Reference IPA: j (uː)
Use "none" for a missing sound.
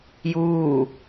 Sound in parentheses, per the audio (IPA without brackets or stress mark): uː